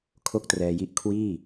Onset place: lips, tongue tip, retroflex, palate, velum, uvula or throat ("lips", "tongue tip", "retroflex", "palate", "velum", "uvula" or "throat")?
velum